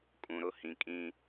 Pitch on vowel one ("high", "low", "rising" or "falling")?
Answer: low